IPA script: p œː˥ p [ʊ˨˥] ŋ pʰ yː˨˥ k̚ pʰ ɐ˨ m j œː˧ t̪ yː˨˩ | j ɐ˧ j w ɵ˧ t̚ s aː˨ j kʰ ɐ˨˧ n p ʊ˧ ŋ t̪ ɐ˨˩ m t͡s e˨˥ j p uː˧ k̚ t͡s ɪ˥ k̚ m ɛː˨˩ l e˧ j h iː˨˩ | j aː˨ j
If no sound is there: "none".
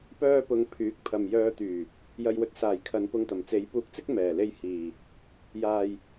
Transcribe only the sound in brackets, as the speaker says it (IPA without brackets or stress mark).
ʊ˧